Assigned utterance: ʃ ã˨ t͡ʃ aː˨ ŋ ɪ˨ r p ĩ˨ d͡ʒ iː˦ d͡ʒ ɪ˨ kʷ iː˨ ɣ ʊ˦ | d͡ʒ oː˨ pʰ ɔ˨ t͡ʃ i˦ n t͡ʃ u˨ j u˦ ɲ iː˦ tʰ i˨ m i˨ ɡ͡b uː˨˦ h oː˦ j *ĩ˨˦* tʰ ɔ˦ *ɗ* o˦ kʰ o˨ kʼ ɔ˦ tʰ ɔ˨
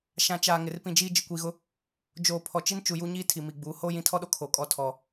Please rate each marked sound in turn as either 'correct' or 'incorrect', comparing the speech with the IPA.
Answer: correct, correct

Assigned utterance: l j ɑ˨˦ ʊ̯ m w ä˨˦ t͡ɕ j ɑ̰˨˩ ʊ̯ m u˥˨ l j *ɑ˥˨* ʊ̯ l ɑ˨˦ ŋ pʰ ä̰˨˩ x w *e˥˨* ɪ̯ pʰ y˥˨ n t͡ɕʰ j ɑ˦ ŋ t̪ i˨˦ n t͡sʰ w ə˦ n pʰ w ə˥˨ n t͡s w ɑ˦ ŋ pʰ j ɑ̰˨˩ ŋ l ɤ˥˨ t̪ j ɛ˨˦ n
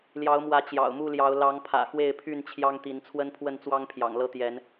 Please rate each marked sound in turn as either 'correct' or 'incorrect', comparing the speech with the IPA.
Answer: incorrect: ɑ˨˦, correct

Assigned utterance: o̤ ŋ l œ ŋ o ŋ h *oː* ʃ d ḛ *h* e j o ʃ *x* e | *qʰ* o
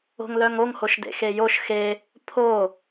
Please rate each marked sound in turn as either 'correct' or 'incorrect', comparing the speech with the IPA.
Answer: incorrect: o, incorrect: x, correct, incorrect: pʰ

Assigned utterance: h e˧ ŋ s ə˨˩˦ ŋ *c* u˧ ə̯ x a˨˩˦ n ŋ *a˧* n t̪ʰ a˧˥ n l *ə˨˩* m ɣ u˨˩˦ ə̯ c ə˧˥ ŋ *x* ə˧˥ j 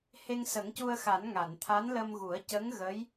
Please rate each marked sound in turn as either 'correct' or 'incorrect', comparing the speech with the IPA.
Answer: correct, incorrect: a˨˩˨, incorrect: ə˧, incorrect: ɣ

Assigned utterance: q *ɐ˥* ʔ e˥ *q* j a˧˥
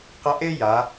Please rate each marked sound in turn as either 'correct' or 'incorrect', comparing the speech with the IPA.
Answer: incorrect: ɐ˧˥, incorrect: none

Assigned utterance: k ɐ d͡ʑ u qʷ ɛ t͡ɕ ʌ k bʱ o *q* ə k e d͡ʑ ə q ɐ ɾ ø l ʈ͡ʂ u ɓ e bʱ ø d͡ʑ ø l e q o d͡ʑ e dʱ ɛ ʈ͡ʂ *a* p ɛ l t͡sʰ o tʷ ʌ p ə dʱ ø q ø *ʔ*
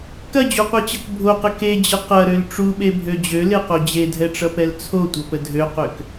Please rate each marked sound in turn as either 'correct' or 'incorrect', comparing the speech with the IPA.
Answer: correct, incorrect: ʌ, incorrect: k

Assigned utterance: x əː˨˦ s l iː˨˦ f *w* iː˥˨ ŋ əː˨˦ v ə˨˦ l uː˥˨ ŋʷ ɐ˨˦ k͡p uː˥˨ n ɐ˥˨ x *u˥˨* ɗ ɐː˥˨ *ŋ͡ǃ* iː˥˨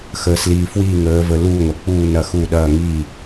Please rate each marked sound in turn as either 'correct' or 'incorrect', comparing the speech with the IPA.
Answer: correct, correct, incorrect: ŋ

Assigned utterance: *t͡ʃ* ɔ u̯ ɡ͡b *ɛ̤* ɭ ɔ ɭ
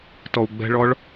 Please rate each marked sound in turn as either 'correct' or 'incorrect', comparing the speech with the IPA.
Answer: incorrect: t, correct

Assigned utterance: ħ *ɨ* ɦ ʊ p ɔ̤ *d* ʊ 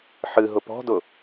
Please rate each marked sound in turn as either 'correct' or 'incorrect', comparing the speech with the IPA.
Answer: correct, correct

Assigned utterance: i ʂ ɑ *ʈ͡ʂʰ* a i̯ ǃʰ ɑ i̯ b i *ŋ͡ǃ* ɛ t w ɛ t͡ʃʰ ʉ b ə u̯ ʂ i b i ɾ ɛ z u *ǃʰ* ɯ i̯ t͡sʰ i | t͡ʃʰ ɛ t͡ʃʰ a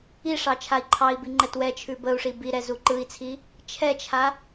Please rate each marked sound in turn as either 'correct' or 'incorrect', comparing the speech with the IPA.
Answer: incorrect: t͡ʃʰ, correct, incorrect: ǃ

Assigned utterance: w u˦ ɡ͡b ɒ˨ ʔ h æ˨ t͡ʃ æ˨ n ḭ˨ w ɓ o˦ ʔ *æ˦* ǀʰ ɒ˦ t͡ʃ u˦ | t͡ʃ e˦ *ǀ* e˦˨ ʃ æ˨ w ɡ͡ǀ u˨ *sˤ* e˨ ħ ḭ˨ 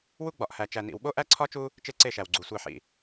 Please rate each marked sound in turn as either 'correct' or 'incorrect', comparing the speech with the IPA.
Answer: correct, correct, incorrect: sʷ

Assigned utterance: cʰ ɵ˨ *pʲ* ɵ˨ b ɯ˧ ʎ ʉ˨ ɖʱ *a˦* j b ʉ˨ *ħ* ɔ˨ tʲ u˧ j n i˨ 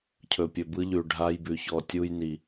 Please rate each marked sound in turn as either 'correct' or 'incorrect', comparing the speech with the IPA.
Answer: correct, incorrect: a˧, incorrect: ç

